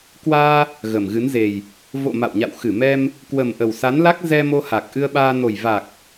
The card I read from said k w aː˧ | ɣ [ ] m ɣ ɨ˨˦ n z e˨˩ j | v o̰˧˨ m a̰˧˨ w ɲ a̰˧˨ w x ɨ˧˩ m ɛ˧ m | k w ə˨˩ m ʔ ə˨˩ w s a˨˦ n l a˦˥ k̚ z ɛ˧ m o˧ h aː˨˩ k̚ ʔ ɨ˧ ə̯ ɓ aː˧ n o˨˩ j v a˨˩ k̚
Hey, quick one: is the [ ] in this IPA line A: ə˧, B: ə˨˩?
B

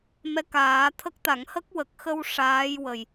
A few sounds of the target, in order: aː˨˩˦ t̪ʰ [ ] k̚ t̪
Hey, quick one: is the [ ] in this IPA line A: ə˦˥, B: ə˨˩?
A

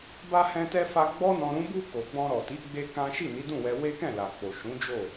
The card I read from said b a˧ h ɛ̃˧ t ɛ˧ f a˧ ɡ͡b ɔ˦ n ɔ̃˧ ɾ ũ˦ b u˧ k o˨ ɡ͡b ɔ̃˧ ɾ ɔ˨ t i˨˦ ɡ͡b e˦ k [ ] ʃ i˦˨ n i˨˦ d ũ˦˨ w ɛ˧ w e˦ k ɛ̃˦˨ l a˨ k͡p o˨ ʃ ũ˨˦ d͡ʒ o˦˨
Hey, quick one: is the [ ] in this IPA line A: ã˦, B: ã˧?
A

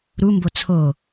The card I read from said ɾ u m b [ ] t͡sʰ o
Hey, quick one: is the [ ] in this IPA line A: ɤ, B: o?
B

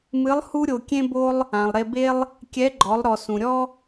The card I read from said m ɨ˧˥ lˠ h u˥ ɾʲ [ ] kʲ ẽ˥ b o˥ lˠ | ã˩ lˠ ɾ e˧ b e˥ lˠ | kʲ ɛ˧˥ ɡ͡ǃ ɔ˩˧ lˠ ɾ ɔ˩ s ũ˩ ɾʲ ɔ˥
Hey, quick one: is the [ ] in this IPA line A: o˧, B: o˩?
A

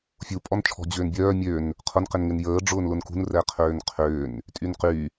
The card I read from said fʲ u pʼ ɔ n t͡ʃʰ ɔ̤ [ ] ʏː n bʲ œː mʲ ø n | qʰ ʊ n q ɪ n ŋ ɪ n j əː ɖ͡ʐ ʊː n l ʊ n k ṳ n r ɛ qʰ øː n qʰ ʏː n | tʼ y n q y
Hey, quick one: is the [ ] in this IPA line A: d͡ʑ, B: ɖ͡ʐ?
A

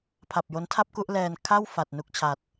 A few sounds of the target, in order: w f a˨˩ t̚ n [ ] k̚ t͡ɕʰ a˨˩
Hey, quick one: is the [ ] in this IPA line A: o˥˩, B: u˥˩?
B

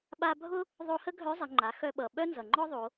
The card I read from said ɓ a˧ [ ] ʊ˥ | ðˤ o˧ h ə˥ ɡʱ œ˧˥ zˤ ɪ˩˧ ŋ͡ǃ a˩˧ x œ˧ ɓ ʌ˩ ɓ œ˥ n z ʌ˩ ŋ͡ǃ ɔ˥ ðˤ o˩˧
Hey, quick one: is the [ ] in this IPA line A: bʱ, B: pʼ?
A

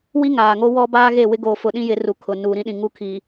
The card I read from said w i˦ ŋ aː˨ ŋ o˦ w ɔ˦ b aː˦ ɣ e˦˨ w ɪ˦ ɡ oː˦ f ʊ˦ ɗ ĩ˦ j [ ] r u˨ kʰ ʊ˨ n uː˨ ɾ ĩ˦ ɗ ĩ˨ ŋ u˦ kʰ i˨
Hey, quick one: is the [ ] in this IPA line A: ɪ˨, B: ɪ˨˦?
B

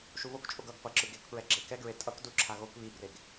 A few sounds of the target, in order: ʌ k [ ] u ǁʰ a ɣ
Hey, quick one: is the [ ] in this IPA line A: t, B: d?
B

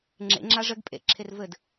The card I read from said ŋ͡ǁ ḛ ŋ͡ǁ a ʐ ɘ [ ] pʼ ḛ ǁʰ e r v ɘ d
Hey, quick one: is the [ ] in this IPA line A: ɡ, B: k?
A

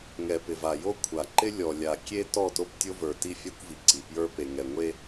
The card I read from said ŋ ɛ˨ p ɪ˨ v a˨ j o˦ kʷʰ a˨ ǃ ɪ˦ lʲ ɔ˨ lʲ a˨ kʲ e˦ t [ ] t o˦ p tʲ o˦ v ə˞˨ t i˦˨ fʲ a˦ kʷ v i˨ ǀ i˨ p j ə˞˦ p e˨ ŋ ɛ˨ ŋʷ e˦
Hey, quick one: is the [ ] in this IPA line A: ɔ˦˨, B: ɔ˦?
A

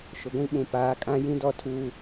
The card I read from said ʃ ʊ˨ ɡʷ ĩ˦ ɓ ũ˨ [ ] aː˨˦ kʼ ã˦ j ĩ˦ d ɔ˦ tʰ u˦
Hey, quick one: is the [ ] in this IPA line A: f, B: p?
B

